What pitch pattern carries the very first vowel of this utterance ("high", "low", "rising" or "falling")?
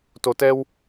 low